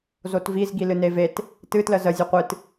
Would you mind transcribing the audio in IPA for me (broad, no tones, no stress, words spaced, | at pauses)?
zotvizɡi lɨnevet | tɨtlə zəzʲo qʷɨt